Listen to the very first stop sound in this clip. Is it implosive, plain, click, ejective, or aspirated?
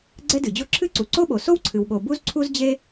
click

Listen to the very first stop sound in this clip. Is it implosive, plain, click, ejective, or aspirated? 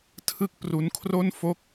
aspirated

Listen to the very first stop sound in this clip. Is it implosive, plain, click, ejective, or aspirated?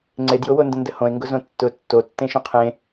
click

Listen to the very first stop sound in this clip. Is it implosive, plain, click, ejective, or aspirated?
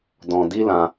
plain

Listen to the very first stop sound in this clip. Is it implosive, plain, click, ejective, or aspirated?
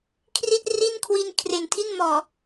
aspirated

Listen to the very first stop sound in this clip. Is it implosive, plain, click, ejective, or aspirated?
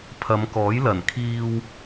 aspirated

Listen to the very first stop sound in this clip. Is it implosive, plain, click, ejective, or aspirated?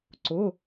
click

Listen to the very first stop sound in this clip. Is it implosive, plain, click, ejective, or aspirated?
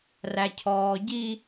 aspirated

